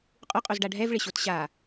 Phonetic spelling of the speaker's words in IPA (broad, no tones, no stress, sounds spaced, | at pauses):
qʼ u qʼ u z ɖ a ɖʱ ɛ v ɭ ɪ ɕ o t ɕ a